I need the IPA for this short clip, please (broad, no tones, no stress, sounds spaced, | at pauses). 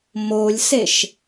m o lʲ s e ʃ